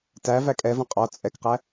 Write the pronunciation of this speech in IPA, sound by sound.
t æ v æ kʼ ɛ v ə̃ qʼ ɔ t͡sʼ ɛ k q æ

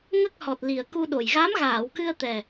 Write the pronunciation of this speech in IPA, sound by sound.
ŋ ə˦˥ k̚ h ɔ˨˩ t̚ l i˨˩ ə̯ k u˧ ɗ o˨˩ j ɣ a˧˥ m ɣ aː˨˩˨ w k ɨ˧ ə̯ t̪ ɛ˨˩

